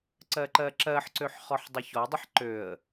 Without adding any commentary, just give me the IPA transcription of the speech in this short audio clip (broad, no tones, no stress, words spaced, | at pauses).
ǀɜǃɜǁɜħǀøħ χɔħdˤəçɔdˤəħ ǃøə̯